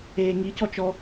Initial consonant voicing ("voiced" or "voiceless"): voiced